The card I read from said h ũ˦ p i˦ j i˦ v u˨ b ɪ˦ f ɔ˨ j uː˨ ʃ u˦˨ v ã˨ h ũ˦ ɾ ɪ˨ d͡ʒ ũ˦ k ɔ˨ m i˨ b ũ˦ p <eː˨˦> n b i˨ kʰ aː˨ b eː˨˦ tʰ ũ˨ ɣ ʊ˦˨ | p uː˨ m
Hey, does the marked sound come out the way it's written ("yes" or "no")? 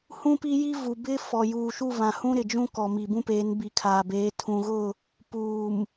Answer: yes